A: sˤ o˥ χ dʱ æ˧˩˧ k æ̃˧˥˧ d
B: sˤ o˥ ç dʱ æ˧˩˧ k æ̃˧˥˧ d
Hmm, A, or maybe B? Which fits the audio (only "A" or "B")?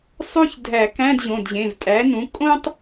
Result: B